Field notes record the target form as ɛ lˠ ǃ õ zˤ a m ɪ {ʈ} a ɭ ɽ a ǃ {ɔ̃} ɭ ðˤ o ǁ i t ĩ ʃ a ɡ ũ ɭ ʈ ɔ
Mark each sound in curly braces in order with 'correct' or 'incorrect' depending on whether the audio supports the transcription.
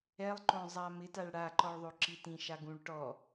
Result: incorrect, incorrect

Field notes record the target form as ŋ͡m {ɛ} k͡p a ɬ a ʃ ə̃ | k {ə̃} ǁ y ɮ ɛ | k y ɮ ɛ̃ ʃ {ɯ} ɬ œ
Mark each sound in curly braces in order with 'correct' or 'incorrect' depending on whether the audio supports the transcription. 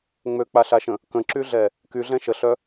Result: incorrect, correct, incorrect

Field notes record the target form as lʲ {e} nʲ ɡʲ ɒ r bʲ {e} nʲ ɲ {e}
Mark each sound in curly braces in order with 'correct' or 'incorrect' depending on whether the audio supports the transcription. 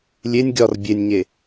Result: correct, correct, correct

